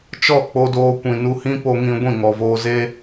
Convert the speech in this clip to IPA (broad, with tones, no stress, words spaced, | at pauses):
t͡ʃɔ˦˨k͡po˧doː˧ kʷĩ˨nu˧hĩ˦ po˧ŋĩ˧ ɡʷĩ˦˨ŋɔ˨voː˧ze˦